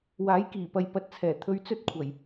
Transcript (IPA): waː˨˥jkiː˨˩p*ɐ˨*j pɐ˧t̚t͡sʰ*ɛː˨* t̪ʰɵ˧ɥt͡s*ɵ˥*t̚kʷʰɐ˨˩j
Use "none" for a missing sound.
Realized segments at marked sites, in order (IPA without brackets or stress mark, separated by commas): ɐ˨, ɛː˨˩, ɵ˥